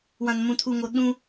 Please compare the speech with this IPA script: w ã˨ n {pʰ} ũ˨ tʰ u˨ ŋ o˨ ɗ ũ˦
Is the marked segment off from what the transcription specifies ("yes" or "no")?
yes